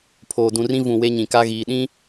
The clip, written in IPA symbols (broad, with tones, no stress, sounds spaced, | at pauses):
pʰ oː˨ d ũ˨ r ĩ˦ v ũ˨ w e˦ ɲ ĩ˨ k a˦ ɣ iː˨ ɗ ĩ˦